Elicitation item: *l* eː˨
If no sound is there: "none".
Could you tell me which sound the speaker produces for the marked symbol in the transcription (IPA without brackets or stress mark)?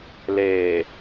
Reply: l